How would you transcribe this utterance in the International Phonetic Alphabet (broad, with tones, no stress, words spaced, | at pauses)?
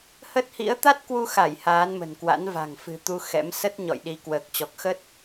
hə˦˥t̚hḭ˧˥ə̯ t̪a˦˥t̚kwu˧xa˧˩j haː˨˦nmə̤˨˩nkwa̰˧˥n va̤˨˩ŋfɨ̤˨˩t̪u˧ xɛ̰˧˥m sə˦˥t̚ ɲɔ̰˧˨jɗi˨˦ kwəː˨˩k̚t͡ɕɔ˨˩k̚xə˦˥t̚